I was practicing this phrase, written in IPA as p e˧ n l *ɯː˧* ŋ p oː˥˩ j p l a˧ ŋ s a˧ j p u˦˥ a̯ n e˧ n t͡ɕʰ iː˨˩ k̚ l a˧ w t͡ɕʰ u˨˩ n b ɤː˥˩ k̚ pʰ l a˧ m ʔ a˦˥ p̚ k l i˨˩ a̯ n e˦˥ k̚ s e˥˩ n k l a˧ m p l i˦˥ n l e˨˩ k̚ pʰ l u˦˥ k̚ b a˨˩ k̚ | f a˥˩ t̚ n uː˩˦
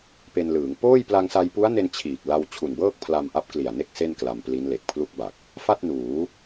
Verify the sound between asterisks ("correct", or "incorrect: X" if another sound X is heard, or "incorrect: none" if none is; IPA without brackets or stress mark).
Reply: incorrect: ɯː˩˦